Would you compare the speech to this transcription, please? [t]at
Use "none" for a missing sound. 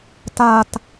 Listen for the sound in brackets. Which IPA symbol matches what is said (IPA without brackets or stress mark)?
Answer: t